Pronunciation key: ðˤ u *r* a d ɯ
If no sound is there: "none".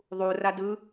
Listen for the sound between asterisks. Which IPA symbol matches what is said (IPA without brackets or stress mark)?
r